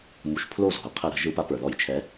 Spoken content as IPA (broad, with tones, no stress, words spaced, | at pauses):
mu˨˦ʃpʰlo˥˩zɔ̤˩ə̯ qʰə˧˩˧ ɾə̤˧˩˧ʒɯ˧˩˧pa˨˦ pə˞˩ðɔ˧˩˧jt͡ʃʰɛ˨˦